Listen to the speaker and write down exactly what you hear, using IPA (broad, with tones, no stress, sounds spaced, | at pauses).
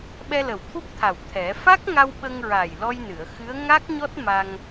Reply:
ɓ ɛ˧ l ə˨˩ w t̪ʰ u˦˥ p̚ t̪ʰ a˨˩ w t̪ʰ ɛ˨˩˦ f a˦˥ k̚ ŋ a˧ w ɓ ə˧ ŋ ɹ a˨˩ j l ɔ˧ j n ɨ˨˩˨ ə̯ x ɨ˧˥ ə̯ ŋ a˦˥ k̚ ɲ ɔ˦˥ t̚ m a˧ ŋ